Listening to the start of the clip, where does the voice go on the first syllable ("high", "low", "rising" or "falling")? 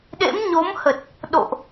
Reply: rising